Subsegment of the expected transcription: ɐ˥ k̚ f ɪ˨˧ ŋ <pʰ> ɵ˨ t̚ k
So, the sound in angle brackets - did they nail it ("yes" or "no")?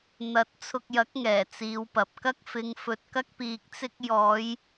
no